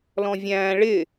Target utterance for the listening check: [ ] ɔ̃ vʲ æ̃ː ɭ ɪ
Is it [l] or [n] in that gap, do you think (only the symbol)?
l